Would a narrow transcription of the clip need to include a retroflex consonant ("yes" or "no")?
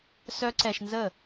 no